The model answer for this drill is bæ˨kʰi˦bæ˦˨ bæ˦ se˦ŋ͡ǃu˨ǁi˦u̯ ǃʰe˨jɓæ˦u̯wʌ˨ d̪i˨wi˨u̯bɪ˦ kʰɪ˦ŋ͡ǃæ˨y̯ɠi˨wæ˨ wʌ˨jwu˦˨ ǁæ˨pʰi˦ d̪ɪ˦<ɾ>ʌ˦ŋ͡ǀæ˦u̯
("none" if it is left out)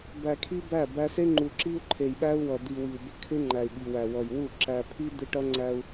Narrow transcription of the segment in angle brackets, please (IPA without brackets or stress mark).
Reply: ʈ